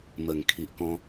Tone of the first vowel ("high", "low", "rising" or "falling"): low